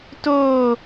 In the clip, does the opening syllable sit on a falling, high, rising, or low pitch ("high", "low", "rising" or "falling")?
falling